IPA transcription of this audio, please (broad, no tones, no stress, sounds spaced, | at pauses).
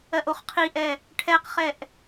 ɜ ʔ o χ qʰ i ʔ ɛ | ʈʰ ɛ q χ ɛ ʔ